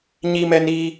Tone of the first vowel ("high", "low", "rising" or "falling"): high